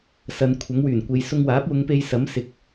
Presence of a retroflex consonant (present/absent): absent